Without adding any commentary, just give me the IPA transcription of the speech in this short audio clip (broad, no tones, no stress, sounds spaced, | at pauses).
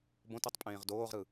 b õ t ɯ tˤ pʼ ẽː ʁ d oː ʁ ɾ ɯ